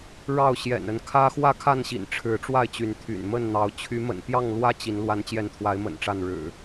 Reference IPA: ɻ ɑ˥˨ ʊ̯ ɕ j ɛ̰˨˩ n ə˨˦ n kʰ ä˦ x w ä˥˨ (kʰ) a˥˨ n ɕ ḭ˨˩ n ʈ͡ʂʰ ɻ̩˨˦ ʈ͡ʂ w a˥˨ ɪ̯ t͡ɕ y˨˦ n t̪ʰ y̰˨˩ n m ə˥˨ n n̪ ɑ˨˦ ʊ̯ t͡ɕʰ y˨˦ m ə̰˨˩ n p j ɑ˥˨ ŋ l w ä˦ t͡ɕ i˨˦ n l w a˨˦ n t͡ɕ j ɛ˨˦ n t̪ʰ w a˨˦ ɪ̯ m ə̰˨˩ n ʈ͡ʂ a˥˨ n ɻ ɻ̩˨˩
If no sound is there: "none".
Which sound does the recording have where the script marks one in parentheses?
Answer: kʰ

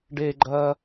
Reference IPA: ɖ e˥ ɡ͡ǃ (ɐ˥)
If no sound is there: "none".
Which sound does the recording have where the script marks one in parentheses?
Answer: ɐ˥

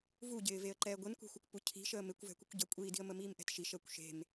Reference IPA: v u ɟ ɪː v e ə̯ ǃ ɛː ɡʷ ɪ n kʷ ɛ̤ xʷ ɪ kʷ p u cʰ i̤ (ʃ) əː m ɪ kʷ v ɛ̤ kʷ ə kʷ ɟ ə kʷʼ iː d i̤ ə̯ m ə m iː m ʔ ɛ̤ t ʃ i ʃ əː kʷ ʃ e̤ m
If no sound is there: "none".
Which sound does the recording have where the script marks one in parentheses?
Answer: ʃ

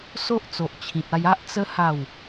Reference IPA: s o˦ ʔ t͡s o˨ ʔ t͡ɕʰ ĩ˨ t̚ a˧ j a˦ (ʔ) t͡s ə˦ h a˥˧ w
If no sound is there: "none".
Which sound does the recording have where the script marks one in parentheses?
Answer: ʔ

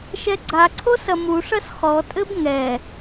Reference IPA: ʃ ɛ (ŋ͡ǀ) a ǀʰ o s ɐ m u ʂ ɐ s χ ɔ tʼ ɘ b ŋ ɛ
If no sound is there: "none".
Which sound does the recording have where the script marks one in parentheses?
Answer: ɡ͡ǀ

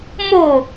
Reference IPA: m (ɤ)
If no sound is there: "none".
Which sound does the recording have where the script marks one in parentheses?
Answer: o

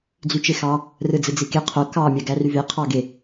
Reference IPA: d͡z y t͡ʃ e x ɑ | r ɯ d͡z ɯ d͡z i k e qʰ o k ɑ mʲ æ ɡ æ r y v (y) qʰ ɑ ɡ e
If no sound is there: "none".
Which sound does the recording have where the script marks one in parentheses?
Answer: e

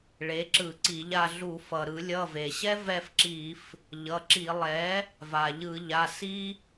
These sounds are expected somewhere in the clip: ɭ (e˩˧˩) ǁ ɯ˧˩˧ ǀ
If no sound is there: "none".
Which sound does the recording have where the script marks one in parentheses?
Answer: e˩˥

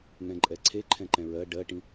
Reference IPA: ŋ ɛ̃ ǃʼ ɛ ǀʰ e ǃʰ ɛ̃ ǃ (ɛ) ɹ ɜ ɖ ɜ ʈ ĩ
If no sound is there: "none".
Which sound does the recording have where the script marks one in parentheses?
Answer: ɛ̃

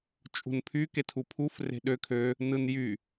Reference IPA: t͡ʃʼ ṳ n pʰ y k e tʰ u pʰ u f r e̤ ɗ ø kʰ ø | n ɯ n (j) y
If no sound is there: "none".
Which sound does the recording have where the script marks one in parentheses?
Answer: j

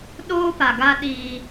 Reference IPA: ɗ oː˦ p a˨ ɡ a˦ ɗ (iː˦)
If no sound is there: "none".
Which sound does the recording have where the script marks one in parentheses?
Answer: iː˦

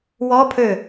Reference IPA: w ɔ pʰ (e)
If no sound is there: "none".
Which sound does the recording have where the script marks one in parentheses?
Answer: ø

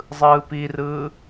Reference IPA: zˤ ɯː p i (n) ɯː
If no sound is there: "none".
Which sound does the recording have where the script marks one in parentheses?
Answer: r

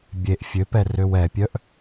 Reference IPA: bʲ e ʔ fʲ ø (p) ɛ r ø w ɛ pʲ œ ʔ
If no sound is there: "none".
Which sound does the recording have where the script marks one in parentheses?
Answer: p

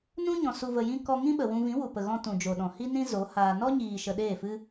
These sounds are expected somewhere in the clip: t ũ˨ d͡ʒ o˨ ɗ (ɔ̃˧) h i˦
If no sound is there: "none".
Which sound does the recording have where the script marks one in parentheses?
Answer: ɔ̃˨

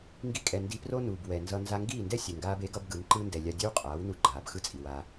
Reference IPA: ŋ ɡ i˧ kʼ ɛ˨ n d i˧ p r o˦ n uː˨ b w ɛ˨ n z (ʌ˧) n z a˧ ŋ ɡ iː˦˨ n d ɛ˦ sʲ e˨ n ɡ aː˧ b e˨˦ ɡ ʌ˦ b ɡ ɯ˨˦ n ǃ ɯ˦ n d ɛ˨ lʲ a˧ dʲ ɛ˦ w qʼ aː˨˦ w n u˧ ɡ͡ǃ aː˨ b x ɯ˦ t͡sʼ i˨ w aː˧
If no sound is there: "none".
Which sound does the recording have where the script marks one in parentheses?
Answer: ʌ˧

